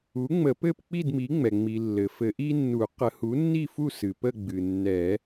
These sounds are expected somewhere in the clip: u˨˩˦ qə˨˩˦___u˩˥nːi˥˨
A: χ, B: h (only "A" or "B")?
B